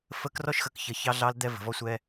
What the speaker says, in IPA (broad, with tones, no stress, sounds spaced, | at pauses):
f ə˦ k r ɔ˦ ʃ x ə˨ k ç ə˨ ç ɑ˦ ɮ ɑ˦ l d̪ ɛ˦ v ə̤˨ v ɔ˦ sʷ ɛ˦